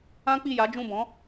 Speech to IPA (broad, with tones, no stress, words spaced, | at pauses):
ã˦k͡pi˦˨ja˨˦d͡ʒũ˦˨ bɔ̃˨˦